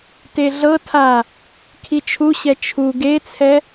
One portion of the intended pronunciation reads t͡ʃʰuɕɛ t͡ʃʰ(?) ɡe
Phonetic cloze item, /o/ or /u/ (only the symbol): u